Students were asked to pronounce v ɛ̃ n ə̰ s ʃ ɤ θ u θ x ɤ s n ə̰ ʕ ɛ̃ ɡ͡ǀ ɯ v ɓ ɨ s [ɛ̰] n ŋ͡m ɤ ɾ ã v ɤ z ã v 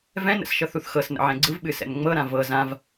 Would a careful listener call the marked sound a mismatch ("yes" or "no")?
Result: no